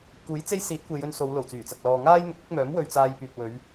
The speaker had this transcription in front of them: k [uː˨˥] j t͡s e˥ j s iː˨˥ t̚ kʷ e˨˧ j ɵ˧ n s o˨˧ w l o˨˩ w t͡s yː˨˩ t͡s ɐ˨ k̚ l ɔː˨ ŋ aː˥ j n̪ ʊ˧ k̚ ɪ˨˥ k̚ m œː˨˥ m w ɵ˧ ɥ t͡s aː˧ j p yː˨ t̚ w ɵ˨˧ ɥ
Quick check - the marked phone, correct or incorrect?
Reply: correct